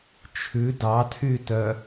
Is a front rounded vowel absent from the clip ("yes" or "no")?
no